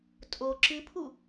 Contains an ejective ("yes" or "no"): yes